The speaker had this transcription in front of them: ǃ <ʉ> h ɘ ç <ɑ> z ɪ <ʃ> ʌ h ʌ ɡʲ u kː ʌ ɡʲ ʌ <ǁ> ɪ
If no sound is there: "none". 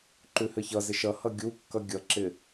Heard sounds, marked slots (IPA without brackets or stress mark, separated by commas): ʉ, ʌ, ʃ, ǁ